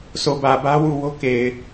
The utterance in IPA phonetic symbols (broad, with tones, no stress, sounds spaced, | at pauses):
s o˨ b ä˨ b ä˦ w u˦˨ w o˦ k e˨ ɪ̯